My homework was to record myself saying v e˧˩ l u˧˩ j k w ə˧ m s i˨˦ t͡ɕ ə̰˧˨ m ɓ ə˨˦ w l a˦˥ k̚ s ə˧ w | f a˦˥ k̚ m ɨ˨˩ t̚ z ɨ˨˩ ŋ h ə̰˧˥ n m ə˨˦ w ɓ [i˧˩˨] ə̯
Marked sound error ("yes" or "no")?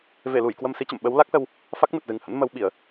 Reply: no